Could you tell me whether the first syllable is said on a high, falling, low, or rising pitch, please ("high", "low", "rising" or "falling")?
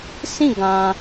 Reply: falling